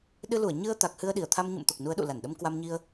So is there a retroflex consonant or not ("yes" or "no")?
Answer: no